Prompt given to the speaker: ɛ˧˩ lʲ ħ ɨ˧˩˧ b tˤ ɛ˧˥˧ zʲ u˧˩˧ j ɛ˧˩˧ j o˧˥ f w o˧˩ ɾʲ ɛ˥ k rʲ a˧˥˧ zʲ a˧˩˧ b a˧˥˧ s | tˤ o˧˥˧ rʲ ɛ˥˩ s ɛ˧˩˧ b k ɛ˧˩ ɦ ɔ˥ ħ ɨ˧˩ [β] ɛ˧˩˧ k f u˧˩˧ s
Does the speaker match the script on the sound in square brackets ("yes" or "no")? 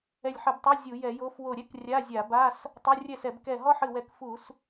no